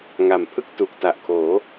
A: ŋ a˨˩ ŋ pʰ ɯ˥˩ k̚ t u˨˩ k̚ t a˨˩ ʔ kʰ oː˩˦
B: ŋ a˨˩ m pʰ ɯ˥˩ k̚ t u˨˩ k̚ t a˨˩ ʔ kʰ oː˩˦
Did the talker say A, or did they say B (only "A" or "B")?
B